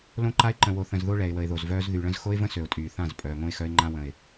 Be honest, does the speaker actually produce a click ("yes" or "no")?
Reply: yes